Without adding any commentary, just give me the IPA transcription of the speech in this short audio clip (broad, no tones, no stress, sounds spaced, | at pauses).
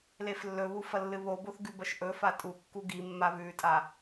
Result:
l e f lː ɵ β u f ɐ lː ɨ β o b o θ ɡ ʉ b ɐ ʃ ʔ ɵ f a tʼ u kː u ɡ i mː a β ʉ tʼ a